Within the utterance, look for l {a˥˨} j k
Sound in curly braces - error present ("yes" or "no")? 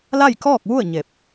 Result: no